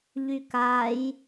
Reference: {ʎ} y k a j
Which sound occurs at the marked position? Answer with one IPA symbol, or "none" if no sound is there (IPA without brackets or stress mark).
ʎ